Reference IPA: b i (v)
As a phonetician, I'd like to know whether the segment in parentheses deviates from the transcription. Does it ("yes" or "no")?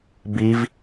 no